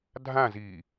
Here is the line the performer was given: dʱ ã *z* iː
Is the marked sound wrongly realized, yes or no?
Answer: no